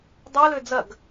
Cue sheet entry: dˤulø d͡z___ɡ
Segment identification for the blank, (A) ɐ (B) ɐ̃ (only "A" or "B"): A